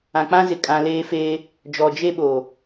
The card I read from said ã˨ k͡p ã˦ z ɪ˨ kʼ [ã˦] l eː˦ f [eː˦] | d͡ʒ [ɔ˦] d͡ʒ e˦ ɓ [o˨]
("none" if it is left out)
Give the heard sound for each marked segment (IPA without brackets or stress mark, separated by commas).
ã˨, eː˦, ɔ˨, o˨